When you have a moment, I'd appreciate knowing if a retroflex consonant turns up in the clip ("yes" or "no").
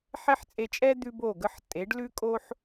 yes